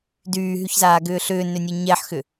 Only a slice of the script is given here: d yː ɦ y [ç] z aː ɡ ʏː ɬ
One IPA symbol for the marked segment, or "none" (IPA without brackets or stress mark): ç